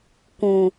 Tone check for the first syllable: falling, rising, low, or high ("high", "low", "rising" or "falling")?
low